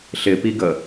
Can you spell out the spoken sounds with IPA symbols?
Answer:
ɬ ɪ p i ɡ ə

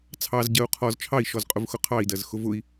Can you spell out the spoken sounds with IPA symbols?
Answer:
t͡sʰ ɑ z ɟ ɜ u̯ qʰ ɔ z t͡ʃʰ ɑ i̯ ʃ ɔ z qʼ ʊ v x ʊ qʰ ɑ i̯ d ɜ z x ʊ v ʊ i̯

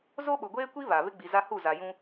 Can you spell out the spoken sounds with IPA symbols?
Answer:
z o˦ ɓ ʊ˨ ɡʷ eː˦ kʷ i˦ β a˨ β ɪ˦ ɡ͡b i˨ z a˦ h u˦˨ z a˨ j ũ˦

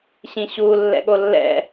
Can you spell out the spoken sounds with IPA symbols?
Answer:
ɕ ĩ ɕ u lː ɛ̰ ɠ o lː ɛ̰

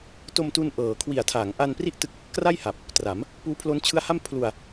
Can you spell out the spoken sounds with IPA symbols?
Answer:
t o˧ m t u˧ n ʔ ɤː˩˦ kʰ w i˨˩ a̯ tʰ a˩˦ ŋ ʔ a˧ n p r i˥˩ ʔ t ɯ˦˥ k̚ | k r a˥˩ j h a˨˩ p̚ | t r a˩˦ m | p uː˦˥ pʰ l o˦˥ n t͡ɕʰ ɯ˦˥ a̯ h a˥˩ m pʰ l u˧ a̯

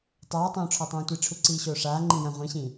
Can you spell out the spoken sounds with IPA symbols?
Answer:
tˤ aː tˤ õː ʈ͡ʂʰ ɔ tˤ õː tʷ i ʈ͡ʂʰ u ǀ iː ɕ oː ʂ aː ŋ͡ǃ ĩ j ã ʁʷ ĩ ɕ ĩ

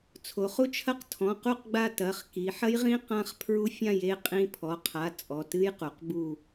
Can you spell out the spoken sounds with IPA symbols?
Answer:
t͡sʰ o˩˧ χ u˦˥ t͡ʃʰ ɐ˦˥ q tʰ ɔ̃˩˧˩ q u˦˨ q ɡ͡b a˦˨ t ɐ˩˧˩ χ k i˩˧ ħ ɐ˦˥ j ʁ ĩ˦˥ q ã˦˥ χ pʰ ɹ u˦˥ fʲ ã˦˨ j e˦˨ qʼ ĩ˦˥ pʰ ɔ˩˧˩ qʰ a˩˧˩ t͡sʼ ɔ˩˧˩ t ɨ˦˥ j q u˩˧ q b u˦˨

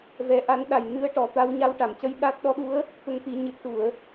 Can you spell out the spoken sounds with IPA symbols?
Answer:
v ɛ˧˥ ʔ a˧˥ n ɗ a˨˩ j n ɨ˧ ə̯ ʈ ɔ˨˩ t̪ a˧ w ɲ a˧ w ʈ a˨˩˨ m c ə˧˥ j ɗ a˦˥ t̚ ɗ ɔ˧˥ ɗ u˧˥ ə̯ | t̪ ə˧ ŋ t̪ i˨˩˦ ɲ ɨ˨˩ t̚ ʈ u˨˩˨ ə̯

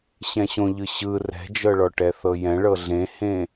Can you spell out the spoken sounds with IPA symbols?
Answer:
ɕ ɛ̃ ɕ õ ʎ ɯ ɕ ɯ r ɛ̤ d͡ʒ ɤ ɭ ɔ ʈ ɛ θ ɤ j ɛ̃ ɭ ɤ ɮ ẽ h ẽ

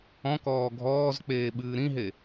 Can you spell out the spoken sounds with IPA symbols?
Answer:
ɔ̃ k ɔː ɡʱ ɔː z k͡p eː ɓ ɨː ɾ ĩ ɦ e

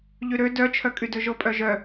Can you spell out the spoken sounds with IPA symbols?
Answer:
ʎ ʉ ɾ ø d œ t͡ʃʰ œ kʼ y d ɵ ʒ o pʼ œ ʒ œ

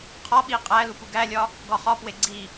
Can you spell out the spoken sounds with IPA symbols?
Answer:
qʰ ɒ ɓ i qʼ æ l u p u ɡ æ lʲ ɒ | ɡ ɒ χ ɒ p w e ɡ͡ǀ i

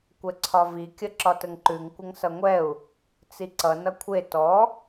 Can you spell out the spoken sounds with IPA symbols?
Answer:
kʷ ɛ ǀʰ ɒ v i kʲ ə ǁ ɒ t ə ŋ ǃ ʉ ŋ kʷ ə ŋ s ʌ ŋʷ ɛ u̯ | t͡s i ǀ ʌ n ʌ kʷʰ e t ɔ

